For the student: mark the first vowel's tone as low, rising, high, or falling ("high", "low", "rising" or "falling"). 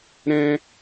high